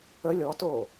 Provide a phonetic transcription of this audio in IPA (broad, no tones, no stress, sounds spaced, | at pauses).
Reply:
ə lʲ ɔ t oː